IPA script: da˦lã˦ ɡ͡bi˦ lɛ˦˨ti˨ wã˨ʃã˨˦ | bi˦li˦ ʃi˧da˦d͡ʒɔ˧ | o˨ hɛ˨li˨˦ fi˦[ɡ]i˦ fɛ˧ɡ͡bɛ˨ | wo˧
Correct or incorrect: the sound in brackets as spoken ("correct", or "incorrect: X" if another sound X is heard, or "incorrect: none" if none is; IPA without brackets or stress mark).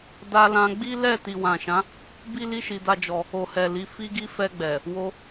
correct